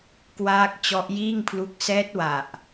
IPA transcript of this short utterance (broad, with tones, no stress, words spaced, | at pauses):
kwaː˦˥k̚ t͡ɕɔ˦˥ʔjiː˥˩ŋpʰlu˦˥k̚ sɛː˦˥t̚wa˨˩ʔ